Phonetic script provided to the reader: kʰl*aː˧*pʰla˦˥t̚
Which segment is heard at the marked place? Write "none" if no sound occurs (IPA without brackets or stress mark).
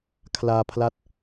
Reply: aː˧